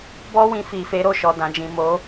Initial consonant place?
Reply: labial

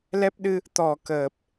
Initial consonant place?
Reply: alveolar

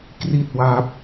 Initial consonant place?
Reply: velar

